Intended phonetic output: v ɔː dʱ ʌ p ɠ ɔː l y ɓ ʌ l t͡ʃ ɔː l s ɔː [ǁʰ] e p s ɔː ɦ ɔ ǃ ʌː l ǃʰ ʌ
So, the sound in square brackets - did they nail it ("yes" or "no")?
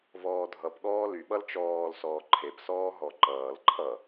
no